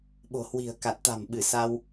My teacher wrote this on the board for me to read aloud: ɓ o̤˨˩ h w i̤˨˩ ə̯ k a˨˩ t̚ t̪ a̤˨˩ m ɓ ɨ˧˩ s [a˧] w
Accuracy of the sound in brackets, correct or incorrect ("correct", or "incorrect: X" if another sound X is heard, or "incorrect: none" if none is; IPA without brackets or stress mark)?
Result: correct